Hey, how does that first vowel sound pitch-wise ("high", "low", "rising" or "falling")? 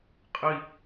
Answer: low